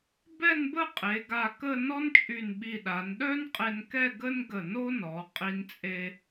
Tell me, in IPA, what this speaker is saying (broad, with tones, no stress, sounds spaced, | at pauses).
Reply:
b ɛ˥˧ n b ə˥˧ qʼ e˩˧ ɡ a˧˩ k ə˥˧ n ɔ˥ n t͡ʃʼ y˧˩ n ɓ i˧˩ ɗ a˩˧ n ɗ œ˥ n qʼ e˧ n k ɛ˥˧ ɡ ə˥ n ɡ ə˧˩ n o˥ n ɔ˩˧ qʼ i˧ n t͡sʼ e˧